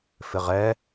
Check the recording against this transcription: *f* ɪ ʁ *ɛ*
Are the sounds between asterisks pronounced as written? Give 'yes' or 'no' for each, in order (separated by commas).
yes, yes